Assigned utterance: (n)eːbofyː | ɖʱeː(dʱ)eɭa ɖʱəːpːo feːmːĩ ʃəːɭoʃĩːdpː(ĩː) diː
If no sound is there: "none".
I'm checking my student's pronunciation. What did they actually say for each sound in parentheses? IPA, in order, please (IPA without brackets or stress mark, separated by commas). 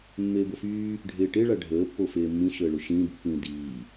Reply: mː, ʈ, ĩː